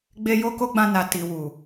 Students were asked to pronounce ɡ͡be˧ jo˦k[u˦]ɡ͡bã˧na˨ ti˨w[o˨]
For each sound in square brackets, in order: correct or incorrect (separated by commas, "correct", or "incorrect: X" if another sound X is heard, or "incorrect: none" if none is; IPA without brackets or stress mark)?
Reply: incorrect: o˦, incorrect: u˨